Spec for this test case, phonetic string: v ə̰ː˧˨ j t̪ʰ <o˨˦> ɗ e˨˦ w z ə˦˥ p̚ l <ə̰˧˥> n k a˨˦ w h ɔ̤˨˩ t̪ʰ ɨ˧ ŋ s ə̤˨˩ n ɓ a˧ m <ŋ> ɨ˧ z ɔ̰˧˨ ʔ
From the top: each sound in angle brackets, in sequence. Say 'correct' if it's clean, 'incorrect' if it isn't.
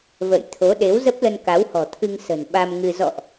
correct, incorrect, correct

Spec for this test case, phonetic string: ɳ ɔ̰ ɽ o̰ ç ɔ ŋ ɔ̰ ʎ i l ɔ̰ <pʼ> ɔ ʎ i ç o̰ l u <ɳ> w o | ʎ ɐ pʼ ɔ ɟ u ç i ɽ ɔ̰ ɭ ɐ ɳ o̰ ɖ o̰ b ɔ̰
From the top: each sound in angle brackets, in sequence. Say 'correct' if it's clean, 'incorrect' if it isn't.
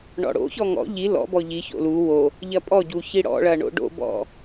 incorrect, incorrect

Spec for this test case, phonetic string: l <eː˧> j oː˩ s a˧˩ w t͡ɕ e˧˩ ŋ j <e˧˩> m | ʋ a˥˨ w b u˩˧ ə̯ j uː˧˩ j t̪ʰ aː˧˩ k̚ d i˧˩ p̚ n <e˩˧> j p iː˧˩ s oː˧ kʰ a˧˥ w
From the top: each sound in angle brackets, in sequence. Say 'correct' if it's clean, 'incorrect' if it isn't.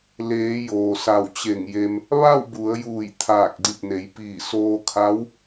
incorrect, incorrect, correct

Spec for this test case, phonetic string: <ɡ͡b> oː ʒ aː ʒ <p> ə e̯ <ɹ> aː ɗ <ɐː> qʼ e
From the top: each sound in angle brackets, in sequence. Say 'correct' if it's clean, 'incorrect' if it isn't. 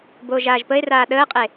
incorrect, correct, incorrect, incorrect

